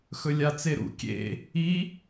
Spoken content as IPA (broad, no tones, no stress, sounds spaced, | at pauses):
x ɵ lʲ a t͡s e ɾ ṵ kʲ ḛ | i